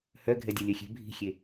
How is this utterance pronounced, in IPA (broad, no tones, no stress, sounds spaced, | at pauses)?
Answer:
h œ ɡʱ ɛ dʲ ɛ lʲ œ xʲ e̤ bʱ i̤ xʲ e